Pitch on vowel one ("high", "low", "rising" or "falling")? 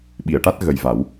low